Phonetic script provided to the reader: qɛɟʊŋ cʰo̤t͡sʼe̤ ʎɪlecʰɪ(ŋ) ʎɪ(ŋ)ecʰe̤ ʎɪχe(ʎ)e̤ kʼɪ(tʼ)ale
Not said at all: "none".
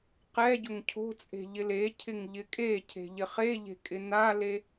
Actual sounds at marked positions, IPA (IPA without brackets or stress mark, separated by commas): ŋ, kʼ, ʎ, n